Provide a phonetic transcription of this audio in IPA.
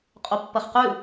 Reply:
qʼ o pː ɐ χ q ʉ

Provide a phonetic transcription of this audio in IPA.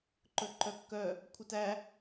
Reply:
ǃ ɵ ǃ œ kː œ | kʷʰ œ t æ

